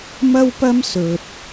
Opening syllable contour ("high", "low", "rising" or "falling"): high